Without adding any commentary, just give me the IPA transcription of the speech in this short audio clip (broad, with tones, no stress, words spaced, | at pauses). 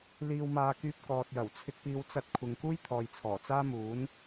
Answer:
liː˨wmaː˨kyː˧p̚ kɔː˨t̚jɐ˨˩w t͡sʰɪ˧k̚piː˧w t͡sɐ˥t̚kʷʰɪ˧ŋ kuː˥jt̪ʰɔː˨jt͡sʰɔː˨˩ t͡saː˥muː˨˥n